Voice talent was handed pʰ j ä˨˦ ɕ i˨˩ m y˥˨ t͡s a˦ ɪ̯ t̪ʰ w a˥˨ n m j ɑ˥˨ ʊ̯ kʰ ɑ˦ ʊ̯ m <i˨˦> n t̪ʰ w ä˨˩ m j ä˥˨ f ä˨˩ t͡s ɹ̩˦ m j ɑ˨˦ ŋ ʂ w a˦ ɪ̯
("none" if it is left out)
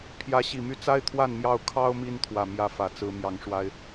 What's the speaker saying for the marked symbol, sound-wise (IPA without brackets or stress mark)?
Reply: i˦